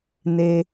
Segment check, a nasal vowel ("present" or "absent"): absent